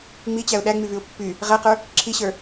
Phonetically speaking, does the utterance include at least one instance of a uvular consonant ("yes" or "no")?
yes